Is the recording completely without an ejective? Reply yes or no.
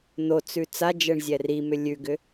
yes